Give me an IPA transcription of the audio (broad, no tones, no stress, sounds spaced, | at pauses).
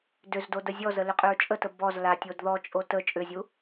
d ʏ z d o d ə zʲ ɔ z ə l ʏ qʼ ʏ ɹ t͡ʃʼ ə t ə b ɔ z l a tʲ o d ð ɔ t͡ʃʼ o t ə t͡ʃʼ ʏ zʲ u